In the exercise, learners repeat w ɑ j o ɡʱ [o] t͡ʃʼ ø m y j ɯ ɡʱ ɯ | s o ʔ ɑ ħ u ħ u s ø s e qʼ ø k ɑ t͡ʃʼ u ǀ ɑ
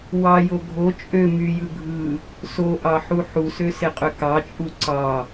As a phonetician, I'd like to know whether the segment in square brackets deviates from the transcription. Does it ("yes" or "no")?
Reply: no